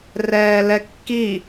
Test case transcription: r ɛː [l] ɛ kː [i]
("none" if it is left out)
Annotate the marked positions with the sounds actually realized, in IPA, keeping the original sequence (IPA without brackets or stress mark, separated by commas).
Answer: l, i